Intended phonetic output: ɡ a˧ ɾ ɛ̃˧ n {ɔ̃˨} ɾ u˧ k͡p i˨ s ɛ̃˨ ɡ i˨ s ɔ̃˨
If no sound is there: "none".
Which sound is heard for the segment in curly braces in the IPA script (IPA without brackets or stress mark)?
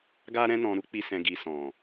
ɔ̃˨